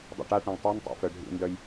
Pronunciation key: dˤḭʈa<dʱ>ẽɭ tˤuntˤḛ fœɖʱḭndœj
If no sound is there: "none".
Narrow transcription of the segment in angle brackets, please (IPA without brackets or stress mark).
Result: ʈ